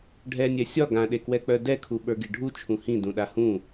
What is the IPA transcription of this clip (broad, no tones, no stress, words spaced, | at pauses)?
ɖʱɛnʲɛ sʲɒ ɡãɗekwɛk͡pœ dɛkʰuɓə˞ɡi ɖʱut͡ʃʰũ hĩdũɗa hũ